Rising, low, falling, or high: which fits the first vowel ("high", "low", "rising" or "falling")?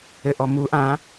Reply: low